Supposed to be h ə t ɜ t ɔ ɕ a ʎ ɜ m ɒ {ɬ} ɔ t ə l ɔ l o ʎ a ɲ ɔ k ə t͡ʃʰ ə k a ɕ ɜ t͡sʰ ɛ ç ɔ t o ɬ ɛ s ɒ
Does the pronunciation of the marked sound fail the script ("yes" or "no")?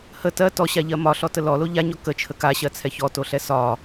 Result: no